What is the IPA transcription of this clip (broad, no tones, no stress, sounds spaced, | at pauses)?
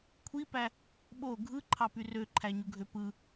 kʷʰ i p æ | ɓ o ɡʱ ɯ ǃʰ ɑ p y r ø ǃʰ æ ɲ u ɡʱ ø p ɯ